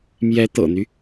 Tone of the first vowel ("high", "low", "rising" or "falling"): rising